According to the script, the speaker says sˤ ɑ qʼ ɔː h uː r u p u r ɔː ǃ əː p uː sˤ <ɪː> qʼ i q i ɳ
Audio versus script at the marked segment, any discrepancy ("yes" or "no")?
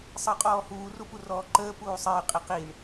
no